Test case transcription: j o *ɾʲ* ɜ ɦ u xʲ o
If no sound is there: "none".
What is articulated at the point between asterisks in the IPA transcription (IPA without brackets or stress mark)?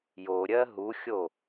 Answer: ɾʲ